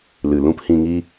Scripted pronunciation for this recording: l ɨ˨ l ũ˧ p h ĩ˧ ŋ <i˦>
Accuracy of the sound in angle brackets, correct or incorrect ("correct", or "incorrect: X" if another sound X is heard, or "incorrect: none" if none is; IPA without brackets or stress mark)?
correct